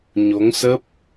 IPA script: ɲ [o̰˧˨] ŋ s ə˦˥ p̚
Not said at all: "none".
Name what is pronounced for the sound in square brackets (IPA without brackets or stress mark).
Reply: o˨˦